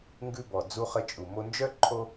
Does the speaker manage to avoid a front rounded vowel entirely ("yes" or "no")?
no